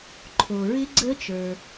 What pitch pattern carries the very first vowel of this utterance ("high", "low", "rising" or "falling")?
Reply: low